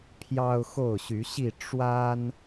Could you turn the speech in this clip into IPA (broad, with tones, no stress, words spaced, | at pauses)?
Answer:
pʰjɑ˦ʊ̯ xo˥˨ʊ̯ɕy˨˦ɕi˥˨ ʈ͡ʂwa˦n